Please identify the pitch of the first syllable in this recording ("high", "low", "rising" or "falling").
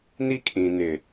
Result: high